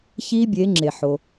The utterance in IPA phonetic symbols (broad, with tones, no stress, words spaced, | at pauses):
çi˦˥bʲe˨˦ ŋ͡ǁe˩ħo˩